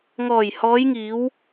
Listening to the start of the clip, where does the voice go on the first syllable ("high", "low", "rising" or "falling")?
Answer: low